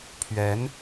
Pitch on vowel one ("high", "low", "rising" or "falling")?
rising